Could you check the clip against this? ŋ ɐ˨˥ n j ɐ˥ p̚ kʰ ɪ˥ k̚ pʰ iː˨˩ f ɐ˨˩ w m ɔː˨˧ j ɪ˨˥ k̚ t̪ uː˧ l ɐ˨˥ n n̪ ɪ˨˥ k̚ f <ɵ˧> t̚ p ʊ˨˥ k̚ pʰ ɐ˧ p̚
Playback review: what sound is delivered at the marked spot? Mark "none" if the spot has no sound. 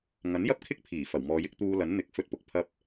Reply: ɵ˧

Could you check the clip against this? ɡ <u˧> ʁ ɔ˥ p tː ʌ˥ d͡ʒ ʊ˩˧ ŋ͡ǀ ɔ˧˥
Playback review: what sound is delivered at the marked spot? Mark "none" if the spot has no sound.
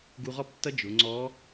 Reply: u˧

